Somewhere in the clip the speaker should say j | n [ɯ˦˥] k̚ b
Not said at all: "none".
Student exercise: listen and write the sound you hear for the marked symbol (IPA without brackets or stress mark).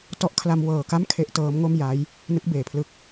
ɯ˦˥